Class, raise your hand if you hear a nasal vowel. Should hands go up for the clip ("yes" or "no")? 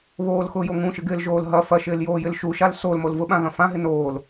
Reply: yes